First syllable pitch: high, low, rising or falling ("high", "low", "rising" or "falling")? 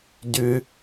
high